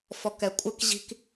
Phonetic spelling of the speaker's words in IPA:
f ɔ k ɛ kʷʼ ɪ k ʑ i̤ k

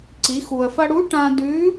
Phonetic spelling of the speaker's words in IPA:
ǀ i˩˧ x u˩ ə̯ f ɐ˧ ɽ u˧˥ ʈ ã˧ d ʉ˧˥

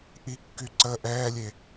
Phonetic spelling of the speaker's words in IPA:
ʔ i kː y ǀ ə ʔ ɛː lʲ e

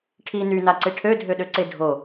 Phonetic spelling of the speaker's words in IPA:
ʈʰ i n y n a ǀ e ʈʰ ø dʱ ø ɗ ø ǀ e dʱ o

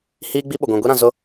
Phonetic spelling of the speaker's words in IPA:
h iː˦ ɡ͡b i˦ ɓ ʊ˨ ɡʷ ĩ˨ ɡʷ i˦ ɾ ã˨ z ʊ˦

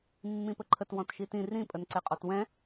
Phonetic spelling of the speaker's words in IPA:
mː ĩ p ə ǃʰ ə t w ɔ̃ t ʃ i t ĩ r ĩ pʼ ə n ǀ ɛ qʼ ɔ t w ɛ̃

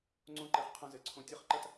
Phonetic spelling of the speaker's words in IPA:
ŋ͡ǀ õ˦ ǃ ɛ˧ χ qʰ ɐ̃˧ z ɘ˨ ǀʰ õ˧ tʲ ɘ˦ χ ǃ ɐ˦ t

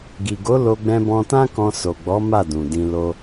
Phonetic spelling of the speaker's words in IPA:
ɡ i˨ ɡ o˨˦ l o˧ ɡ͡b ɛ̃˧ b ɔ̃˧ t ã˦ k ɔ̃˧ s o˨ ɡ͡b ɔ˨˦ m a˦˨ d ũ˨ d ĩ˧ l o˧

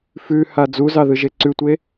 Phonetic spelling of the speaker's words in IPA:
f ʉ h a d͡z u z ɑ ð ɯ ʒ e ǀ ʉ tʷ e

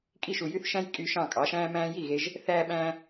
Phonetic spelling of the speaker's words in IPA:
kʼ i˥˩ ʃ u˩ j y˥ θ ʃ æ̃˥ j kʼ y˧ ʃ ɑ̃˥˩ kʼ ɑ˩˥ ʃ æ̃ː˥ m æ̃ː˥ j i˥˩ ɣ e˧ ʒ | θ æː˧ ɓ æ̃ː˧

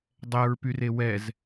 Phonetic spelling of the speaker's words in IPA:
dˤ ɛ ɹ p y r e w ɛ z

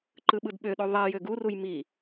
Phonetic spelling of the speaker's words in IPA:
ǃ ɯ ɓ ɯ d ɓ ø ɗ o ðˤ e j ø ɡ u r u j m i

